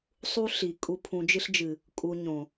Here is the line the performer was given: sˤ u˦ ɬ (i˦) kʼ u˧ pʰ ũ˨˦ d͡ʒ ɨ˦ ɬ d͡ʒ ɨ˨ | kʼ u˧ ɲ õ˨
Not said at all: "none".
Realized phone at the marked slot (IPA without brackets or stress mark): i˨